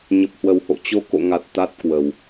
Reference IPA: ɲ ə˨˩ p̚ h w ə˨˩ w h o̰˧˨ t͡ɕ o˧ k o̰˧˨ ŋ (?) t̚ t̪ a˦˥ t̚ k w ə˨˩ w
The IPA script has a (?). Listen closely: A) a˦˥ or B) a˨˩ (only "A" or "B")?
B